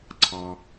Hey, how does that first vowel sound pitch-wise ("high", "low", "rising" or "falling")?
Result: low